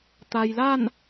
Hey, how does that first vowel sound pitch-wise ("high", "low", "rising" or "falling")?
low